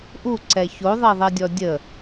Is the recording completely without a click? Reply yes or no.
no